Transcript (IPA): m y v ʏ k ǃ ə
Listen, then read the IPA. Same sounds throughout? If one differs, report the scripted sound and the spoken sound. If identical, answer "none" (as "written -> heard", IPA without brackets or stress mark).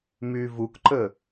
ʏ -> u